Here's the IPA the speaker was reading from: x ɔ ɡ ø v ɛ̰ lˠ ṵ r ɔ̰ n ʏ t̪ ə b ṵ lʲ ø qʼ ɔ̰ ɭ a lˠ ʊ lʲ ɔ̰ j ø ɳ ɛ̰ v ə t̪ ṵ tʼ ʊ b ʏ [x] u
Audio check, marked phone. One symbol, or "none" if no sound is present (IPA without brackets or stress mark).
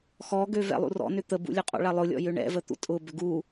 ɡ